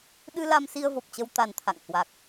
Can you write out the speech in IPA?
ɗ ɨ˧ l a˧ m s i˧ ə̯ v o˨˩ p̚ t͡ɕ ə˧ w t̪ a˨˩ n t̪ʰ a̰˧˨ ŋ h w a˨˩ k̚

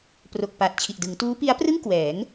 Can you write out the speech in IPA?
p r o˨˩ k̚ p a˨˩ t̚ t͡ɕʰ i˨˩ ʔ d ɯ˩˦ ŋ t uː˦˥ p i˦˥ a̯ p r ɯ˥˩ ŋ k w ɛː˩˦ ŋ

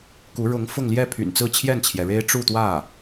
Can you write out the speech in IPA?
k u˧˥ ɻ ʊ˧˥ ŋ f ʊ˥˧ ŋ l j ɛ˥˩ pʰ y̰˨˩ n t͡s ɹ̩˥˧ t͡ɕʰ j ɛ˥˩ n t͡ɕʰ j ɛ˩ ɻ e˥ ɪ̯ ʈ͡ʂ u˥˧ t̪ w ä˥˩

